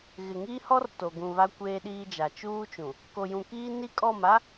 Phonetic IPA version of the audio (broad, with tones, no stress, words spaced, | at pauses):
ɣɪ˨ŋiː˦hɔ˦r to˨ɡũ˨βa˦ kʷeː˦ɗiː˦d͡ʒa˨ t͡ʃuː˦t͡ʃũ˨ | ko˨jũ˨kiː˦ ni˦kʼɔ˦˨ma˦